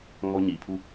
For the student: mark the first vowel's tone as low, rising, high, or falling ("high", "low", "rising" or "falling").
high